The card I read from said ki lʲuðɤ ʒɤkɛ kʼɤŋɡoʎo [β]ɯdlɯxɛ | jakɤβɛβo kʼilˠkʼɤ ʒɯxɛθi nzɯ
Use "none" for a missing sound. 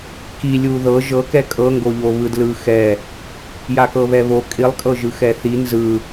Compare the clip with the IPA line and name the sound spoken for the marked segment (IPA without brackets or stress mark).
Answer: β